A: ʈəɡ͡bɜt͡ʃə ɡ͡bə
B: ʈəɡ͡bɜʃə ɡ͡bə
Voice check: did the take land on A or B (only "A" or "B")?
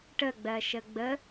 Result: B